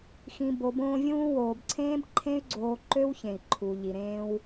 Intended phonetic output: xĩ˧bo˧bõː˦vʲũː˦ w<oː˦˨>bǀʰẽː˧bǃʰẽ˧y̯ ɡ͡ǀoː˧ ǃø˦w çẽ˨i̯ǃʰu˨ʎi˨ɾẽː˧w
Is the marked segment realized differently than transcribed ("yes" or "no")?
yes